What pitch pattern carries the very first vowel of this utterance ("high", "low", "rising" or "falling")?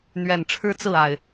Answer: low